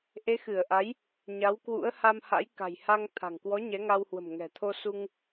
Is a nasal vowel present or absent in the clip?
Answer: absent